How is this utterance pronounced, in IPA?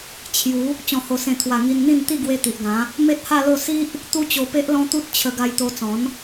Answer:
t͡ɕʰ j u˨˦ | t͡ɕ ɔ̃˨˩ h o˨˩ s ẽ˨˩ t̪ʰ w a˨˩ ŋ i˧ n n̪ ĩ˥˧ n t̪ i˥˧ ɡ w e˧ t̪ i˨ ʔ ɡ ã˨˦ | m e˦ t̚ h a˥˧ l o˥˧ s i˦ ʔ | t̪ u˦ t͡ɕ o˧ p e˦ ʔ l ɔ̃˦ t̪ u˦ t̚ t͡ɕʰ ə˧ ɡ a˧ j t̪ o˧ t͡s ɔ̃˨˦ n

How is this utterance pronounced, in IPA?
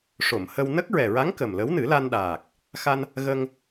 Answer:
ʂ o˨˩˨ m h ə˧ w n ə˦˥ k̚ ɹ ɛ˨˩ ɹ a˧˥ ŋ k ə˨˩ m l ə˧˥ w n ɨ˨˩˦ l a˧ n ɗ aː˨˩ k̚ | x a˧ n | ɣ ə˧ ŋ

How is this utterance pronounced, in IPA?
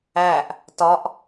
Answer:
æ ʔ | t ɒ ʔ

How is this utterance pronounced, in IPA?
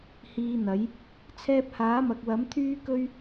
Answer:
h iː˧ n̪ ɐ˨˥ j | t͡sʰ ɛː˧ p̚ h aː˨˥ m ɐ˨ k̚ w ɐ˨˥ m t̪ʰ yː˥ k ɵ˥ ɥ

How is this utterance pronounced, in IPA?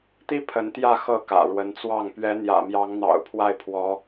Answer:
t̪ i˥ pʰ ə˧˥ n t̪ j ä˥˧ x ɤ˥˩ k ä̰˨˩ ɻ w ə˧˥ n t͡s w ɑ˥˩ ŋ p ɥ ɛ˧˥ n̪ j ä̰˨˩ m j ɑ˧˥ ŋ n̪ ɑ̰˨˩ ʊ̯ pʰ w a˥˩ ɪ̯ pʰ w ɔ˧˥

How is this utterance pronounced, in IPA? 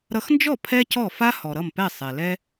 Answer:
ɾ ʌ˧ x n d͡ʒ ɔ˥˩ pʰ ɛ˥ c ɔ˥˩ f a˥ h ɔ˩ ɾ ʌ˥˩ m p ɛ˥˩ sˤ ɛ˩ l ɛ˧

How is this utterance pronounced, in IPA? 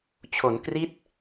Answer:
t͡ɕʰ o˩˦ n k r i˦˥ t̚

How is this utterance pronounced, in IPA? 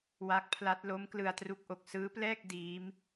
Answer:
w a˦˥ k̚ pʰ l a˦˥ t̚ l o˦˥ m k l ɯ˧ a̯ t r u˦˥ k̚ ʔ o˨˩ k̚ s ɯː˦˥ p l ɛː˥˩ k̚ d iː˦˥ m

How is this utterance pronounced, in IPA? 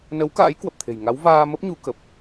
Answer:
n ə˨˦ w k a̰ː˧˥ j k w ə˨˩ p̚ t̪ʰ e̤˨˩ j ŋ a˨˦ w v aː˧ m ə˦˥ p̚ ɲ u˨˦ k ə˨˩ p̚

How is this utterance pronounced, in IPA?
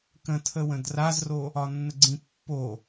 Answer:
k ə̃ tʰ ə w ə̃ d r a z r o | ɒ nː ə ɡ͡ǀ ĩ pː o

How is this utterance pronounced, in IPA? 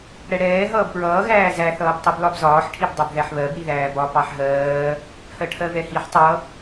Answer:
ɽ ɛ ɽ ɛː ɦ ʌː b p ɹ ʌː ɣ æː z æ θ ʌː b tˤ i b l ɒ b z ɒː ħ ʈʰ i b dˤ ɛ b ð æ ħ β ɜ b ɽ i ð æː b ɒ p ɑ ħ ɦ ɜː | h ɜ ʈʰ ɜ v ɛ h i ħ tˤ ʌ

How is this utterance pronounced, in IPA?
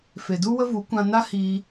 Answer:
f e˨ d u˦ w ə˦ v u˨˦ kʷ ã˧ n a˦ h iː˧

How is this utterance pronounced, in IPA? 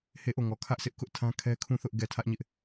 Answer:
h e˦˨ ʔ o˦˨ ŋ ɔ˨ kʰ ä˦ ʔ s ɪ˦ ʔ k ʊ˦ ʔ tʰ ã˦ kʰ ɛ˦ kʰ ũ˦˨ θ ʊ˦ ʔ ɡ ɛ˦˨ tʰ ä˦ ʔ ɲ ɪ˦ ʔ

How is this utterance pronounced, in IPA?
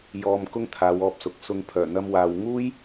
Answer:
j ɔː˧ m k ʊ˥ ŋ t̪ʰ aː˨˧ w ɔː˧ p̚ s ʊ˨ k̚ s ʊ˧ ŋ pʰ œː˨˩ n̪ ɐ˥ m w aː˧ w ŋ uː˥ j

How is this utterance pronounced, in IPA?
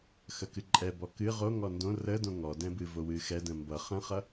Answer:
x ə k ɨ ǃʼ ɛ b ɔ k ɨ ʁ o ŋ ɔ n d õ r ə d õ ŋ ɔ d ɛ̃ b ɨ v o w ɨ x ɛ d ə̃ m b ʌ χ ə̃ χ ʌ

